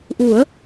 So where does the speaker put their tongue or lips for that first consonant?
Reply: throat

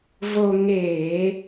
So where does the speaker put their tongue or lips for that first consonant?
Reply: lips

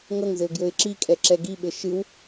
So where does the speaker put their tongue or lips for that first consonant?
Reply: velum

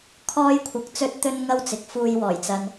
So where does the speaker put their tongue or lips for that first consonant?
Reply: velum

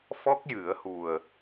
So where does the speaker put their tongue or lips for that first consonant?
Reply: lips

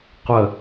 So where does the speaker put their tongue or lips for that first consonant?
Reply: uvula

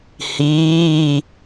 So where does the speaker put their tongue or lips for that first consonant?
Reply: throat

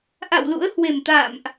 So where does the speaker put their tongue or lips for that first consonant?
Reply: throat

